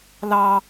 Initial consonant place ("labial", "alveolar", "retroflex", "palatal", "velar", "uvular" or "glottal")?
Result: alveolar